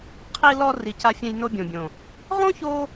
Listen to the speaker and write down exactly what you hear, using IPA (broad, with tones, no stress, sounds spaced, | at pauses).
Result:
qʰ i˦ l ɔ˦ r i˧ c a˦ fʲ ẽ˦ j n o˧ bʲ õ˨ bʲ õ˨ | ʁ õ˦ ç o˧